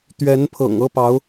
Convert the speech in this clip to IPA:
t̪ ɥ ɛ˧˥ n pʰ ɤ̰˨˩ ŋ ɤ˥ p ɑ˧˥ ʊ̯

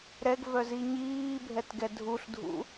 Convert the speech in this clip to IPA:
ɾ ɛ ɡ v œ z i ɲ iː bʱ ɛ t ɡ ɛ dʱ u ɬ dʱ ṵ

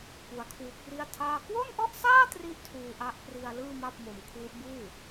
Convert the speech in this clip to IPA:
p u˦˥ a̯ kʰ w u˦˥ k̚ r i˥˩ a̯ tʰ aː˥˩ k w o˥˩ n ʔ ɔ˥˩ ʔ s aː˥˩ t r i˥˩ ʔ tʰ uː˧ ʔ a˦˥ ʔ p r i˧ a̯ l ɯː˥˩ m a˥˩ p̚ m o˧ m kʰ w u˦˥ ʔ b uː˥˩

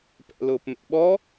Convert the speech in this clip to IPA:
p ɛ̰ l ʊː p m ɛ̰ ɓ ɔ

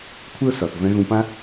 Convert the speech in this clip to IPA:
kʷʰ ɪ˦ ʊ̯ s ɒ˩ θ v ɛ̃˨ ɣ ũ˨ p ã˦

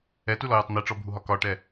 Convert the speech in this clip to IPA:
ɛ t u l ɔ j u tˤ n̪ i ʈ͡ʂ ɔ bʱ u ɦ ɒ k ɒ ʈ ɛ

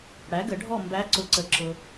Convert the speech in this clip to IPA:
ɽ æ˩˥ ɡ ə˨˩˦ ɖʱ ɔ˥˨ m b æ˧˥ ǀ ʊ˧˩ ǀ ə˧˩ ǁ ʊ˧

